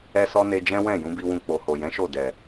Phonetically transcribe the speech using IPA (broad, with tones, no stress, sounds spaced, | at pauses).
ɛ˦ s ɔ˦ n e˧ d͡ʒ ɛ̃˦ w ɛ̃˦˨ j ũ˨˦ b i˧ w ũ˧ k͡p o˨ h o˨ j ɛ̃˨˦ ʃ o˦˨ d ɛ˨